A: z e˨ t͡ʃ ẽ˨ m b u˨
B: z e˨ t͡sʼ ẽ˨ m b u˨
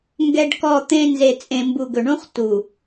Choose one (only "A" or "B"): B